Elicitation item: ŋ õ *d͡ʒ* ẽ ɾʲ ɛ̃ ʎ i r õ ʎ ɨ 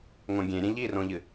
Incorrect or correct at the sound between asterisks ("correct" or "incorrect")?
incorrect